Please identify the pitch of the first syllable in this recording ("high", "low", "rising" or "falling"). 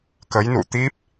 rising